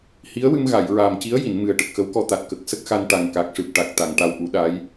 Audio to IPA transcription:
h i˧˥ ə̯ w ɨ˧ m ɣ a˨˩˨ j ɹ aː˨˩ m c i˧˥ ə̯ j i˨˩˨ n m ɨ˨˩ ə̯ ʈ ə˨˩ k̚ x ə˧˥ w k ɔ˧ t̪ a˨˩ t̚ k ə˨˩ k̚ s ə˦˥ k̚ x a˧ n ʈ a˨˩ ŋ k a˨˩ k̚ ʂ ɨ˨˩ p̚ ʈ a˨˩ k̚ t̪ a˨˩˨ ŋ ʈ a˧ w ʔ u˨˩˦ ɗ a˧˥ j

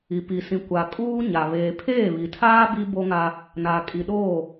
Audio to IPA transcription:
i˨ p i˨ s ĩ˨ kʷ a˨ kʼ uː˦ ɲ a˨ β eː˨ pʰ eː˦˨ β i˨ tʰ aː˦ b i˦ b o˦ ŋ a˦ | n a˨ kʼ i˨ ɗ oː˦˨

